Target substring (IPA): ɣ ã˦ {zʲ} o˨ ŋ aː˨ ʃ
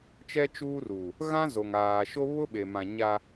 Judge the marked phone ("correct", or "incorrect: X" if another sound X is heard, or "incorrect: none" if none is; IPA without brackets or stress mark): incorrect: z